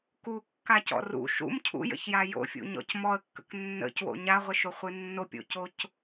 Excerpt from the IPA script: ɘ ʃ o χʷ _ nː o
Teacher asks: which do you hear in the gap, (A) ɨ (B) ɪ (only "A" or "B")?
A